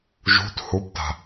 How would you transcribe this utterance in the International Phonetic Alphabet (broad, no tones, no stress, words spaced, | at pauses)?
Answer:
ʒṳt hupta̤